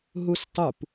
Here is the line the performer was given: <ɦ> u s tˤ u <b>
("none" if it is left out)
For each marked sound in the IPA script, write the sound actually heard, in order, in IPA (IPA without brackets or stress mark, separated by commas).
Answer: ɦ, p